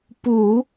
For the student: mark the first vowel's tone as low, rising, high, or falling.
low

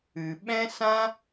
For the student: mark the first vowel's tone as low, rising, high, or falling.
low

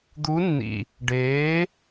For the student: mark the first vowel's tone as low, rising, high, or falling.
rising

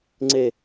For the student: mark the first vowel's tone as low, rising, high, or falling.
falling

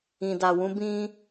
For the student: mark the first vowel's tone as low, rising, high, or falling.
low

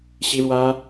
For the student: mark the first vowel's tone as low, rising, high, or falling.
high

